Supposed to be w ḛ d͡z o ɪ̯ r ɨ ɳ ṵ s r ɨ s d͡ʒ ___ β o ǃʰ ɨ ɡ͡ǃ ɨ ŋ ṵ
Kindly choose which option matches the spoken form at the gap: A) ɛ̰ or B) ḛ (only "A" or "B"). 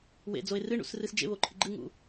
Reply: B